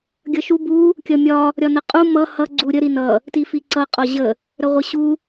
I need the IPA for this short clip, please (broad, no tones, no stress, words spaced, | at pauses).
ɡʲʌʃu bu | kʲʌmʲɒ | ɾʲɒnəqʼu mʌ hʌ ɡ͡ǀuɾʲə ɾinʌ | tifiǀʌ qʼɒʑə | ɾəʁʷəɕu